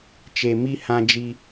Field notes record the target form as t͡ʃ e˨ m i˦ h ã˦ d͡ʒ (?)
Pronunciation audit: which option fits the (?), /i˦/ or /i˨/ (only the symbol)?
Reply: i˦